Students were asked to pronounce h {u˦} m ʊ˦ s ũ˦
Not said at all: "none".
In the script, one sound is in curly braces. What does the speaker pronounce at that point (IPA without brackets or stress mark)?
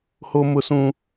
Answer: o˦